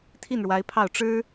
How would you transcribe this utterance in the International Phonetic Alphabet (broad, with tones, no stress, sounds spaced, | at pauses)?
t̪ʰ i˥˩ n ɻ w a˧˥ ɪ̯ pʰ ɑ˥˩ ʊ̯ ʈ͡ʂ ɻ̩˥